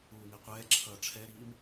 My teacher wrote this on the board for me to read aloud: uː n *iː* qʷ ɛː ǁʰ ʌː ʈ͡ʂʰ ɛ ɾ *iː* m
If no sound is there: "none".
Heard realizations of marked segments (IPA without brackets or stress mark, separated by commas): i, iː